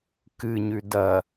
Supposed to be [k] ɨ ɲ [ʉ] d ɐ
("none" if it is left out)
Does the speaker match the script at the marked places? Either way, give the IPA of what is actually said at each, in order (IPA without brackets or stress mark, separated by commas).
k, ʉ